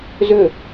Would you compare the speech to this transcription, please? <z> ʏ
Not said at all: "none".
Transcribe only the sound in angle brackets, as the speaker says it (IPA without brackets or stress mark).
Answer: z